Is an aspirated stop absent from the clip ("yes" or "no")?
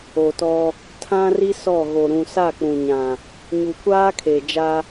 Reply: no